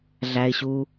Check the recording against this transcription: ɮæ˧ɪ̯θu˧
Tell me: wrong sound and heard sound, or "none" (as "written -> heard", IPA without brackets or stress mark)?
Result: θ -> ɕ